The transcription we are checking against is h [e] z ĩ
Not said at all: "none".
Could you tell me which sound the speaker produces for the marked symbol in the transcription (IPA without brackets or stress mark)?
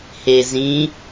e